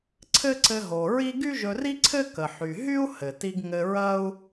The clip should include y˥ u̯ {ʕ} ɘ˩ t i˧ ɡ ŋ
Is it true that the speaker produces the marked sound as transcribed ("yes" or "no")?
no